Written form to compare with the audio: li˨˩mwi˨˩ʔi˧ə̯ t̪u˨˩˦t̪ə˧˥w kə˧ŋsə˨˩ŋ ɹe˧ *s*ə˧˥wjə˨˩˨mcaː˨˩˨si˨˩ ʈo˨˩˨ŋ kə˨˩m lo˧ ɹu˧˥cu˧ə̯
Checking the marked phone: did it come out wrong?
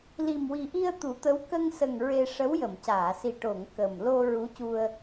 yes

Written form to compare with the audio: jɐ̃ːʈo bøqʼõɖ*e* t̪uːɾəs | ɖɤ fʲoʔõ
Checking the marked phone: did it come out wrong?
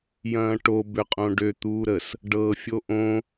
yes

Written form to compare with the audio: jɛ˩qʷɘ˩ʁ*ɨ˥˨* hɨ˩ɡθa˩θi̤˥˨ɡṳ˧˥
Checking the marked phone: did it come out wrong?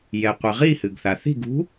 yes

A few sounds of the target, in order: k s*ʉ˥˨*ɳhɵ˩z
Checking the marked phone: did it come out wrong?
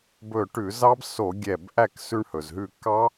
yes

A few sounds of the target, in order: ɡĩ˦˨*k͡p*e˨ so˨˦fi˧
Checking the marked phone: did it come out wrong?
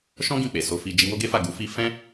no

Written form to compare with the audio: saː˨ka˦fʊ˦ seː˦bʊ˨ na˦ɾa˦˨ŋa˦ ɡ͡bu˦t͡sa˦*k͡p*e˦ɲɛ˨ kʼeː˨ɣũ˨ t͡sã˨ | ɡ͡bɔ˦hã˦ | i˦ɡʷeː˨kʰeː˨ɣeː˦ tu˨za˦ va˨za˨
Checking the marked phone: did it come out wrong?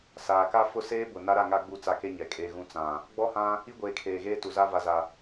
yes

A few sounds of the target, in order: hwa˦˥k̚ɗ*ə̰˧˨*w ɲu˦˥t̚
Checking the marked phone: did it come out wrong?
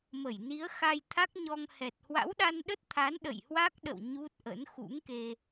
no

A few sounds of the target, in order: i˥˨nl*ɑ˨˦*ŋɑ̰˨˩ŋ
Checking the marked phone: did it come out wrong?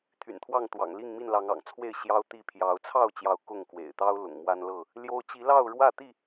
no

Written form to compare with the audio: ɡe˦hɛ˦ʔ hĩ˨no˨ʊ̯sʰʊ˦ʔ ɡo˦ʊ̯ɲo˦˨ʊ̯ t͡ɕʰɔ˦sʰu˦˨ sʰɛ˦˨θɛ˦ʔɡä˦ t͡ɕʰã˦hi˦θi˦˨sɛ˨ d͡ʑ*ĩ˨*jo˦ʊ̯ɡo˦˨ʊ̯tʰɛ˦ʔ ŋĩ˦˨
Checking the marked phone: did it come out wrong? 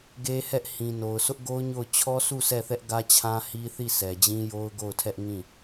yes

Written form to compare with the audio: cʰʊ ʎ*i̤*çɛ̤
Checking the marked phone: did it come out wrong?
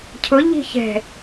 no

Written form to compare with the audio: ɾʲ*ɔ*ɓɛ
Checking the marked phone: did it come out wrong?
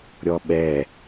no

